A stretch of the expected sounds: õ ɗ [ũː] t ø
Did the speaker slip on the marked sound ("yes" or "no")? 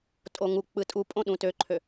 yes